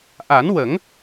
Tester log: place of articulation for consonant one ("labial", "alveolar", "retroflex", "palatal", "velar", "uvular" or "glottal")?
glottal